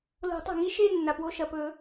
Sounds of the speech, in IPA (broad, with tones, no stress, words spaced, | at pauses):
lo̤˨˩˦tˤa̤˩ŋi˥˧ ʃe˥˧ nːa˩pwo˥˧ ʃɐ˩pɵ˨˩˦